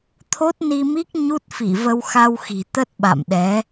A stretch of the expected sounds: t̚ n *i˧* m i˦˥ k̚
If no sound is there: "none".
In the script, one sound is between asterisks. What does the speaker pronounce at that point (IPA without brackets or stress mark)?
i˧